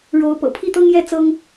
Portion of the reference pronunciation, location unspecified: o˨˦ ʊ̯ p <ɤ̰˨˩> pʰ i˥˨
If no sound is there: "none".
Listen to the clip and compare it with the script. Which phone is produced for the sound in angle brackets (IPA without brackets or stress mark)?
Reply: ɤ̰˨˩